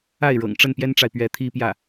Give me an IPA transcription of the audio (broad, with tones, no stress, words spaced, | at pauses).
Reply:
a˥˩ɪ̯ ɻɤ̰˨˩ŋʈ͡ʂə˥˩n pjɛ˥nʈ͡ʂa˨ɪ̯ pɥɛ˧˥t̪ʰi˥pjä˥˩